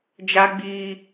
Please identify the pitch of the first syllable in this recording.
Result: high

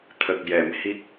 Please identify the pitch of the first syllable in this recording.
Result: low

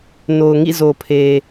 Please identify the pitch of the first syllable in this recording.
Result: low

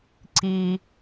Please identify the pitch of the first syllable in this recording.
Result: low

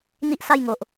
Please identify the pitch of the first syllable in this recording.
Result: high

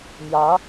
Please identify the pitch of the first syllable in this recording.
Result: rising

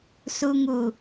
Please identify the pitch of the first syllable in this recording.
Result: low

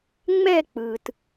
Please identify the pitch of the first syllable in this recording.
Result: falling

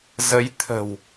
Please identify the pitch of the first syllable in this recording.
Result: rising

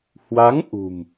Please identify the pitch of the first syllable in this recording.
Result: rising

